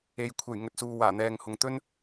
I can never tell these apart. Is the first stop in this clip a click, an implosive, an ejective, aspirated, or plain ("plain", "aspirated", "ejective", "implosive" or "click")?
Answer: aspirated